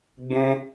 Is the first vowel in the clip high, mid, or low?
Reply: high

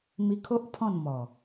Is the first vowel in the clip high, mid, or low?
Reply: high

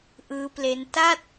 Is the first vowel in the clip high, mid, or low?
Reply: high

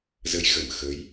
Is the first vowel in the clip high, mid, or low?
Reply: mid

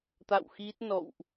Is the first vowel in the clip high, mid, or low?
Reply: low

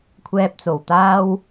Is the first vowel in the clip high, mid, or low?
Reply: mid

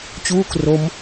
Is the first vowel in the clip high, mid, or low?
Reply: high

